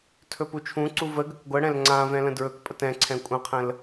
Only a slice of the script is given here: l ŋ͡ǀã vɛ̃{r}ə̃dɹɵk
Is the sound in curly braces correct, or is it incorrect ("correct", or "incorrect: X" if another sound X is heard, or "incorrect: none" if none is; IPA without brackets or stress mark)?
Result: incorrect: l